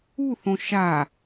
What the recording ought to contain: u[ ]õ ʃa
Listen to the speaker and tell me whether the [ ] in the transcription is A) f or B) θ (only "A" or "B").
B